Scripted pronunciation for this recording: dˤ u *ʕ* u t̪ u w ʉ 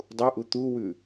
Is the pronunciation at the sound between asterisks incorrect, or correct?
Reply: incorrect